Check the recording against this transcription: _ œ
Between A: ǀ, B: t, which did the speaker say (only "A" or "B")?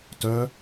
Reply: B